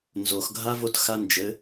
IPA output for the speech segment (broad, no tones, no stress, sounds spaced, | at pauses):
n z o x ɡʱ a v o t x a n d͡ʒ ɘ